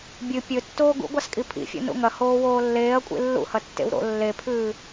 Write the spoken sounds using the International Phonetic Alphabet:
bʲ ɨ pʲ ɵ tː oː ɡ ṵ ɡʷ a s kʼ i pʰ ḭ fʲ o̰ n ṵ ŋ ɐ h oː w oː lː eː ɐ̯ kʷʼ ḭ lː ṵ h ɐ tː ḛ w ɾ o̰ lː e pʰ ʉː

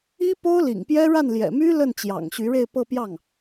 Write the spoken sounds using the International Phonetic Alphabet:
i˥ p o˥ ʊ̯ l ḭ˨˩ ŋ p j ɛ˥ ɻ a˥˩ n l j ɛ̰˨˩ m y˥ l ə˥˩ n t͡ɕ j ɑ̰˨˩ ŋ ɕ y˧˥ ɻ e˥˧ ɪ̯ p ɤ˥˧ p j ɑ˥˩ ŋ

